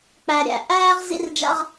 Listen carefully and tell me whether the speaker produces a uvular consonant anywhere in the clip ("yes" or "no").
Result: yes